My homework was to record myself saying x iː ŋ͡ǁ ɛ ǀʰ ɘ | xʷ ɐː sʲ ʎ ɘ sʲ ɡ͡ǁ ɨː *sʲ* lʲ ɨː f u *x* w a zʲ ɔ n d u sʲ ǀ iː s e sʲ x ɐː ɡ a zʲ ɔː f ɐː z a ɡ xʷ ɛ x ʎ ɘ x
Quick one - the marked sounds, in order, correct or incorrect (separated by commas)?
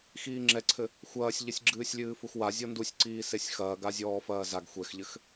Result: correct, correct